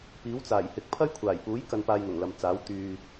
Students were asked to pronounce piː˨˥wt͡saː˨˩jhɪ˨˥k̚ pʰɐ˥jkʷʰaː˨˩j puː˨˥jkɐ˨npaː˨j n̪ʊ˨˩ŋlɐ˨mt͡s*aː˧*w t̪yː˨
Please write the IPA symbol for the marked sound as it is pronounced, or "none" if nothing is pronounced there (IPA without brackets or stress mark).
aː˨˥